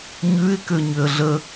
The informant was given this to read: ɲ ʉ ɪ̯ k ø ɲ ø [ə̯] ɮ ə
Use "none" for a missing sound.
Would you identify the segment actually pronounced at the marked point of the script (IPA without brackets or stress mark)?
ə̯